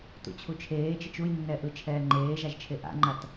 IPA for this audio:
t ṵ t͡ɕʰ u t͡ʃʰ eː t͡ʃ i t͡ʃ u j nː ɛ ʔ ɯ t͡ʃʰ ɛː ŋ͡ǃ eː ʒ a ʒ t͡ʃʰ e ʔ a̰ ŋ͡ǃ a t

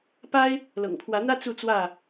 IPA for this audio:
p a˦ ɪ̯ | l ɤ̰˨˩ ŋ pʰ w ä˨˦ n̪ ä˦ t͡s u˥˨ t͡s w ä˥˨

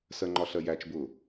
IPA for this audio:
s ɜ ŋ͡ǃ ɒ ɬ ɜ j æ t͡ʃ b ʊ

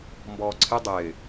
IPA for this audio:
m b ɔː ǀʰ ɪ dˤ ɪː

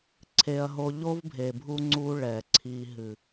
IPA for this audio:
ǀʰ e˨ ɐ̯ ɦ o˨ ʎ o˦ v bʱ e˨ bʱ u˦ ŋ͡ǀ u˦ ɭ ɛ˨ ǀʰ i˨ ɦ ɨ˨

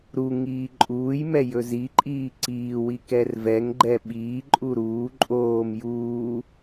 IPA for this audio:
ɾ u ŋ iː ǃʼ uː j m ɛ j ɵ z i ǃʼ iː ǀ iː w i k ɛ r v ɛ ŋ ɡ͡ǃ ɛ ɓ iː ǃʼ u ɾ uː ǃʼ oː m j uː

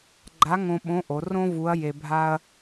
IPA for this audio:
ɡ͡ǃ a˧˥ ŋ õ˧ ɓ õ˧˥ ʔ o˩˧ r õ˥ v u˧˥ ɐ̯ j e˧ bʱ a˥ ɐ̯

